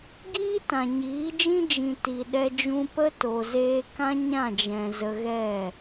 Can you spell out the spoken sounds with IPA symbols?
ɡiː˦tã˨ɲiː˨˦d͡ʒĩ˦ d͡ʒĩ˨ ti˨ɗɛ˧d͡ʒũ˧ pə˦ to˨zeː˧kã˦ ɲã˦˨d͡ʒɛ̃˨ zə˧ɣɛ˦˨

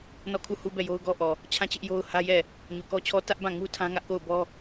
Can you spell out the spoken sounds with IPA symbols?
nɔ˦˨kʰu˦˨hu˦ bɛ˦˨jo˦ʊ̯ɡɔ˦ʔɔ˨ | t͡ɕʰã˦˨t͡ɕɪ˦ʔ jo˦ʊ̯hä˦jɛ˦˨ | ɲu˨kɔ˦t͡ɕʰɔ˦ tä˦ʔ bã˦˨ ŋu˦tʰã˦ ŋä˦ʔko˦˨ʊ̯bɔ˦

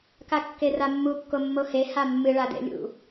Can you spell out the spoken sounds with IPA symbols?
kakːeramːu kːomːohe hamːɨ ɭadḛlʲṵ

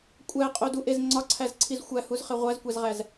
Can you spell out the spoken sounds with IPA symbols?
kʷʼæqʼoduʔez ŋ͡ǀɒǀʰæzǀʰiz xʷæhuzχe ʁʷæzkʷæzʁæz

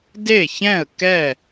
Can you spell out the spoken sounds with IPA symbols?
de˥˩çɛ̃˥˩ə̯ kɛ˥˩

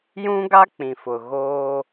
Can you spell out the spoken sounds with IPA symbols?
jũ˦ɡa˦ k͡pĩ˨fʊ˨ ɣoː˦

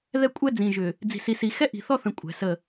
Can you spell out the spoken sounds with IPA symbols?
ðɛ˦kʷʼɛ˦ d͡zĩ˨ʒʏ˨ | d͡zi̤˨si˨si˨ xɛ˦ʔi̤˨θɔ˦θə̃˨ kʷʼɛ̤˨sə˦˨

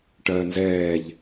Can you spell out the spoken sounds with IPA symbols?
ʈɜːnzɛːʎ

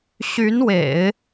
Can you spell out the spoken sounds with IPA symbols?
ɕy˧˥nwḛ˨˩˦ɪ̯

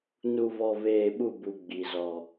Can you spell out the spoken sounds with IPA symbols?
nu˨vɔ˨veː˨ ɓu˦˨bu˨ ɡ͡bi˨zɔ˨

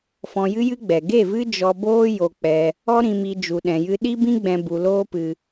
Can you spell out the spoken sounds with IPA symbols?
fɔ̃˧jɨ˦jɨ˦ɡ͡bɛ˨ ɡe˦˨vɨ˦ d͡ʒɔ˧boː˦ jo˧k͡pɛ˧ | ɔ˦ɾĩ˧mi˧ d͡ʒu˨ɗɛ̃˨jɨ˧ ɗi˦bĩ˦ɡ͡bɛ̃˧ bu˧loː˦pɨ˧

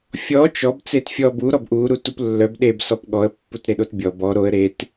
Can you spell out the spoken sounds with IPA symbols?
fʲɔ t͡ʃɔb t͡setfʲɔ bu ɾɔbʔu ɾutuplːœb ɗeb sɔpɠɔə̯ pːutɾeɗotbʲɔ bɔ ɾoə̯ ɾet

